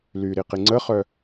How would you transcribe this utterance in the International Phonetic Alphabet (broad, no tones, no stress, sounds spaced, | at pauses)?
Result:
l y ɾ i q i ŋ͡ǀ ə χ œ